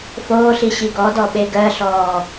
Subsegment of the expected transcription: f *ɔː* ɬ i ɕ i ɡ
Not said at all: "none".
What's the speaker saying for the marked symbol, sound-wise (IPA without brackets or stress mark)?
oː